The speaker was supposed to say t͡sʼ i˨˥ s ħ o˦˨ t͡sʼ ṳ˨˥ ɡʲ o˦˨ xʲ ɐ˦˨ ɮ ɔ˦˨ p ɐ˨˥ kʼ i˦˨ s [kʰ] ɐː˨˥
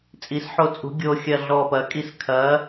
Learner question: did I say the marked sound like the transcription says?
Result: yes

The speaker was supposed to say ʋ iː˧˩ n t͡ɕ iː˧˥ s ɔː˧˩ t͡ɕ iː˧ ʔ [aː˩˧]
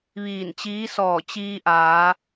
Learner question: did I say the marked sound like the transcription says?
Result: yes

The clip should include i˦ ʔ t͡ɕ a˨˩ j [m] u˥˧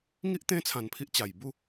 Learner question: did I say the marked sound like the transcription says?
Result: no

